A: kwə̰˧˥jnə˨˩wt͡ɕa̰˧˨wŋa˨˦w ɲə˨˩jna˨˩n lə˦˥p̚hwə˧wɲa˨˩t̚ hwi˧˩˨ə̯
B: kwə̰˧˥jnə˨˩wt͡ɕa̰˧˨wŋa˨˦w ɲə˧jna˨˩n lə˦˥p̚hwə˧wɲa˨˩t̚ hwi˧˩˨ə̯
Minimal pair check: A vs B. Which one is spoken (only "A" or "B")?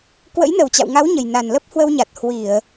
A